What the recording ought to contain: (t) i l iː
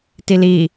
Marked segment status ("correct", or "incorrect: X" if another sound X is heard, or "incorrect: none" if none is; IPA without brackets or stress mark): correct